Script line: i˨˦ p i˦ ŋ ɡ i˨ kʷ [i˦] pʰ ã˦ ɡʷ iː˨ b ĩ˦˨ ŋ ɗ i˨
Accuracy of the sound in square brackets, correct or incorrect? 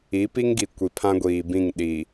incorrect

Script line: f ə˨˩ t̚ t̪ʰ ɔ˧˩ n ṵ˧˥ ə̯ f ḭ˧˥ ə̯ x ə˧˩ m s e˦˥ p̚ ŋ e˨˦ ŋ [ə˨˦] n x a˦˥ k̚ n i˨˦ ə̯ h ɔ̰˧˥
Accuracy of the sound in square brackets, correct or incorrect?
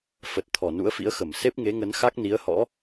correct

